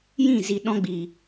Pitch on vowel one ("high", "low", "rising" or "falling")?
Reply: falling